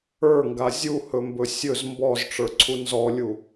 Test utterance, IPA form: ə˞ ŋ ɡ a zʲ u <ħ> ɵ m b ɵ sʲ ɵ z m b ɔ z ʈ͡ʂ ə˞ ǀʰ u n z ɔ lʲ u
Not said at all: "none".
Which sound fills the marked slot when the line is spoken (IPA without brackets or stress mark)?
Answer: h